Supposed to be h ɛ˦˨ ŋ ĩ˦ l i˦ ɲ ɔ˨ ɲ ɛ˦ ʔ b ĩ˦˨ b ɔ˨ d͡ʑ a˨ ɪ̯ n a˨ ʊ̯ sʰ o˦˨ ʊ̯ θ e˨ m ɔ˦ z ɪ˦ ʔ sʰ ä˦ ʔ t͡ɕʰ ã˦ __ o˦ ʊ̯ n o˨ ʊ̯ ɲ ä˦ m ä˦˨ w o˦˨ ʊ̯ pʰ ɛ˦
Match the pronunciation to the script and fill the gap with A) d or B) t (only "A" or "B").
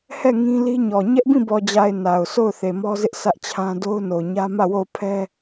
A